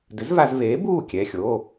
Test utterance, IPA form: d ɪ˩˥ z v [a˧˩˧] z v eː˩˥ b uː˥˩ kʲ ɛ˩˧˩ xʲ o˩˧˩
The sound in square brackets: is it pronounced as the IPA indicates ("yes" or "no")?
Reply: yes